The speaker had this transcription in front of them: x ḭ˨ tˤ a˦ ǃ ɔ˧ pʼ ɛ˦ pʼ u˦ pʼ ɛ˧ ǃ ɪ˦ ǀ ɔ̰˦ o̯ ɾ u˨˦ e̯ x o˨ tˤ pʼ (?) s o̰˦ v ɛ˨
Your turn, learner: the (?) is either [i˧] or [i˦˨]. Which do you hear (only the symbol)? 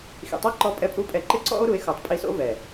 i˧